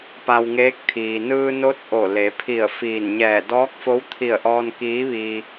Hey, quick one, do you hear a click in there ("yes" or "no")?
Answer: no